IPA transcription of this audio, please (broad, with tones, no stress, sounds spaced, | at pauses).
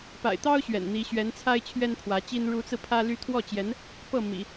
p a̰˨˩ ɪ̯ t̪ ɑ˥ ʊ̯ ɕ ɥ ɛ̰˨˩ n n̪ i˧˥ ɕ ɥ ɛ˧˥ n t͡sʰ a˥ ɪ̯ t͡ɕʰ ɥ ɛ˥ n pʰ w ä˧˥ t͡ɕ i˥ n ɻ u˧˥ t͡s ɹ̩˧ pʰ ä˥ l y˥ t̪ʰ w ɔ˥˩ t͡ɕ j ɛ˧˥ n | p ɤ˥˩ m ḭ˨˩˦